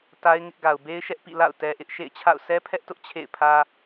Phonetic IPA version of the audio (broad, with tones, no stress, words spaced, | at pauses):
ta˦ɪ̯ŋɪ˦ʔ ɡa˨ʊ̯be˦ɪ̯ʃɛ˦ʔpḭ˦˨ la̰˦˨ʊ̯ tɛ˦ʔɪ˦ʔ ʃḛ˦˨ɪ̯t͡ɕʰa̰˦˨ʊ̯ sʰɛ˦pʰɛ˦ʔ tʊ˦ʔ t͡ɕʰḛ˦˨ɪ̯pʰä˦